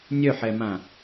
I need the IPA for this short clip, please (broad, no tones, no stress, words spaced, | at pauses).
nʲœħɛmã